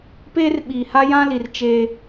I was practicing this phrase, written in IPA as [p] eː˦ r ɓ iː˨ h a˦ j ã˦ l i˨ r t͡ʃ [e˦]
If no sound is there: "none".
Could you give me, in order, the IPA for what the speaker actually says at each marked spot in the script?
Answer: p, e˦

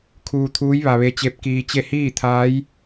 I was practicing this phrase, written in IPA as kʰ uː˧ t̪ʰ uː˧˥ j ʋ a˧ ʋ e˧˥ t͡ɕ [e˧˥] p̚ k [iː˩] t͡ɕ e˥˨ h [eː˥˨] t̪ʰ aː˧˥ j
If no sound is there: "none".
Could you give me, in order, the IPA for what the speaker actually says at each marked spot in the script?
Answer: e˧˥, iː˧, iː˥˨

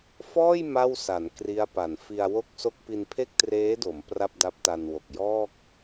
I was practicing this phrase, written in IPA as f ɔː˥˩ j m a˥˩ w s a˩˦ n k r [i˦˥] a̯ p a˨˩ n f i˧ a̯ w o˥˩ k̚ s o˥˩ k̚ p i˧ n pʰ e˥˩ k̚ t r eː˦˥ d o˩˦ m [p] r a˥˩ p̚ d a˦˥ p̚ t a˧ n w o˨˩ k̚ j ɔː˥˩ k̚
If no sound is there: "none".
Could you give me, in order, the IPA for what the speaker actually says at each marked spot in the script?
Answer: i˦˥, p

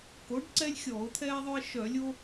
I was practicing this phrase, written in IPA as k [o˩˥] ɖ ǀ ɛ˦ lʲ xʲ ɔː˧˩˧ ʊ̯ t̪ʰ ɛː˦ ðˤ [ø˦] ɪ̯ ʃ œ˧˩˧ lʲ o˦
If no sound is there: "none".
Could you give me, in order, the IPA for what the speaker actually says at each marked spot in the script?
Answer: o˩˥, ø˦

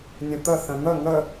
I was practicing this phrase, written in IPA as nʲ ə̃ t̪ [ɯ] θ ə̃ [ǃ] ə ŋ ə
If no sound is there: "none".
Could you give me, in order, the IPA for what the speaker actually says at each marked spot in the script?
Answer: ə, n̪

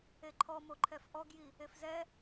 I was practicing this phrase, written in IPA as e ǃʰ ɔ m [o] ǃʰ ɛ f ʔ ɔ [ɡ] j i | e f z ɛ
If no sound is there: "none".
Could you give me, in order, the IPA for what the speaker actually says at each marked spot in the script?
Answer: o, ɡ

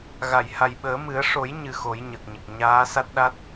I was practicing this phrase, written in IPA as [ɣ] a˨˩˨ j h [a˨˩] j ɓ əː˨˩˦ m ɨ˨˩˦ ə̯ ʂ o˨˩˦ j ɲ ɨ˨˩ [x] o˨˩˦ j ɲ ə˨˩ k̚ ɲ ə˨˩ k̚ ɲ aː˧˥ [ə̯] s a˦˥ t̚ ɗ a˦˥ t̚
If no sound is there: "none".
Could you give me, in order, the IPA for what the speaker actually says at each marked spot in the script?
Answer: ɣ, a˨˩, x, none

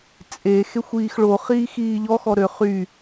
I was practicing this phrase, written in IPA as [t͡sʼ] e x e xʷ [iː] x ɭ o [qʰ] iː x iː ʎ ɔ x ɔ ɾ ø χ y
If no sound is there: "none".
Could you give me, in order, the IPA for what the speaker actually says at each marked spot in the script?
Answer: t͡sʼ, iː, χ

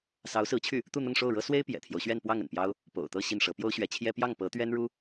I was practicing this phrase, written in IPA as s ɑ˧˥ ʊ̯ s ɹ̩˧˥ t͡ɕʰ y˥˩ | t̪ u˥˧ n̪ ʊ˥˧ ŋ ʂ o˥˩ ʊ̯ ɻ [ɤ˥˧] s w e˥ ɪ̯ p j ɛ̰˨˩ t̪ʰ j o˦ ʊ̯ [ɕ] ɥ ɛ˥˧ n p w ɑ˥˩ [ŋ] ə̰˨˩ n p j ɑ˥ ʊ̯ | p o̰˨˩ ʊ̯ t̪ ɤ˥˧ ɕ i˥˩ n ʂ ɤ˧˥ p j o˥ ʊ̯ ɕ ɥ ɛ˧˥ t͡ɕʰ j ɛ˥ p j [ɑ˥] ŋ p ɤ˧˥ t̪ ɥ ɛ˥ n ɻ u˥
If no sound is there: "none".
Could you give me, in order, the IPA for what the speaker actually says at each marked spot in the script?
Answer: ɤ˥, ɕ, ŋ, ɑ˥˩

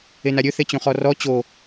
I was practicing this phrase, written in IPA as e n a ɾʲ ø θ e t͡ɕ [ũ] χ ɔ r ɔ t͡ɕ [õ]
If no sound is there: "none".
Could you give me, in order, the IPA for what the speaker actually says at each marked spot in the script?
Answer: õ, o

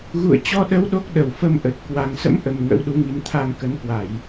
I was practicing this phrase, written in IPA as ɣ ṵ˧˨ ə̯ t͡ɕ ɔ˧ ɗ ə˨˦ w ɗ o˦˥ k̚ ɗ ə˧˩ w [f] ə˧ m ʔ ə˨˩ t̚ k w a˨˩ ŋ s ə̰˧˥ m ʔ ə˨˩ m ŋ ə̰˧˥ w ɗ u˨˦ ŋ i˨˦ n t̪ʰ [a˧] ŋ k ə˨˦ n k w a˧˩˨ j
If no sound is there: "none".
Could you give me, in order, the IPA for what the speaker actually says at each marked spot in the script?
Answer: f, a˧

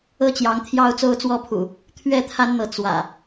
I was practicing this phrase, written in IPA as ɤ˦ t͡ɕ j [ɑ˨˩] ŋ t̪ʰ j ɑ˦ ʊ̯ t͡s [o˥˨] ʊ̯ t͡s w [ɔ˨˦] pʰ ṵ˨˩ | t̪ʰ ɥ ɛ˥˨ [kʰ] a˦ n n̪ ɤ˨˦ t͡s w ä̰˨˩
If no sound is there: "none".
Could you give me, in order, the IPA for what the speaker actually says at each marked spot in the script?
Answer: ɑ˨˦, o˦, ɔ˥˨, t̪ʰ

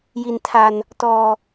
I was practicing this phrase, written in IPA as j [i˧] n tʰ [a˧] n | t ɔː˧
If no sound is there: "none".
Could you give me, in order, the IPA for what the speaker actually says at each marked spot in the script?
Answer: i˧, a˧

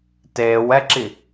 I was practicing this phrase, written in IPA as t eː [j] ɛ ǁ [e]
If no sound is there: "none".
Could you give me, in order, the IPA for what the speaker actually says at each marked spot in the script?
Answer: w, i

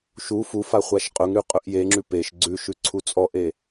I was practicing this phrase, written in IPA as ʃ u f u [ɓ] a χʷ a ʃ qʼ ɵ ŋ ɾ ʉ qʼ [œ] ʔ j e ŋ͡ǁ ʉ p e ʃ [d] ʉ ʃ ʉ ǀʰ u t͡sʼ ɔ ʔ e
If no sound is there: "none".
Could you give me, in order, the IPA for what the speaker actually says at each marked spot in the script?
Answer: f, ɵ, ɡ͡ǀ

